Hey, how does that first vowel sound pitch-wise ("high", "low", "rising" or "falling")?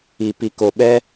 low